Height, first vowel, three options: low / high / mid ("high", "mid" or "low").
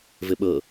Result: mid